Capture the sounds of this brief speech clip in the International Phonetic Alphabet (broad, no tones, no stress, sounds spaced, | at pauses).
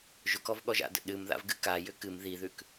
ʒ ʊ k ɔ v ɠ ɔ ʒ a̰ d ə̰ ɗ ɨ m ð a̰ v ɡ ɨ k a j ʏ k ɨ m ð i ð ʉ k